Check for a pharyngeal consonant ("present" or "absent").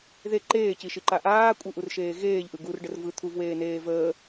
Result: absent